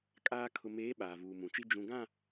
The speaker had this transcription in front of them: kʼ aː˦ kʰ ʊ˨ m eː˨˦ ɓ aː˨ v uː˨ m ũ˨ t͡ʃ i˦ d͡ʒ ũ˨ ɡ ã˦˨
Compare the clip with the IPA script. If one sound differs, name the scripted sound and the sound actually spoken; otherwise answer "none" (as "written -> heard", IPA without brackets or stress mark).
none